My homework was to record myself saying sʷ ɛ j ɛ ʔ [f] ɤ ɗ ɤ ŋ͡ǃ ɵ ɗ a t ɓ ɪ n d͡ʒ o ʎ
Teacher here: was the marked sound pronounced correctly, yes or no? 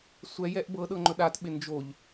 no